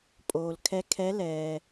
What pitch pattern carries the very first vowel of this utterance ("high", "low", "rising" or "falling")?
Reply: low